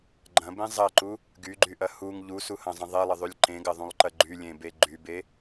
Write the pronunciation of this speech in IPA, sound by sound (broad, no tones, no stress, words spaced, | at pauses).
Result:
ɡ͡ǃɐ̃bẽ zˤɐǃu | ɡyɡ͡ǃyʔɐ huŋ ʎusuhɐ̃zˤə̃ ðˤelˠəðˤylʲ ǃẽɡɐðˤũlˠǃɐ ɡ͡ǃylʲẽbe ɡ͡ǃybe